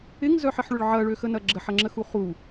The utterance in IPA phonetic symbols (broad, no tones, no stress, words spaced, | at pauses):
ɪŋzœħɪħɭʏɭ ʕɐɭøxənɐ ɡ͡ǁəħɐŋ͡ǁəxu χu